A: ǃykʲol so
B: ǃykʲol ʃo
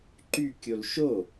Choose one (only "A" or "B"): B